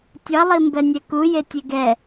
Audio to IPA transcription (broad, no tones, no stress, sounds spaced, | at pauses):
tʲ ʌ lˠ i m b ɛ nʲ ɛ k u j e tʲ e ɡ ɛ